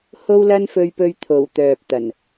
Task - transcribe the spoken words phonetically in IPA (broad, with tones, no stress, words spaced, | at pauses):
ho˥wlɐ˥nfɵ˧ɥpɵ˧ɥ t̪ʰo˨˩wt̪œː˨p̚ t̪ɐ˨˩n